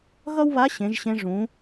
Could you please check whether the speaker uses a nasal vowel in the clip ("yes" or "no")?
yes